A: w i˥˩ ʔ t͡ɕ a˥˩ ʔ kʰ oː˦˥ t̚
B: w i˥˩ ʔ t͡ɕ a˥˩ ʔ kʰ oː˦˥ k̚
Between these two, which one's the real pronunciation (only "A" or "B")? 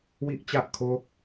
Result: B